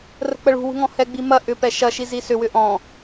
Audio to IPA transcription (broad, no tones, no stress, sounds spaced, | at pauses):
r ə̤ k͡p ə ɭ ṳ w ṳ ŋ ɔ̃ h ɛ ɡ͡b i m ɐ ʔ ʏ p ɛ ʃ ɐ ʃ i z i s ʏ w ʏ ʔ ɔ̃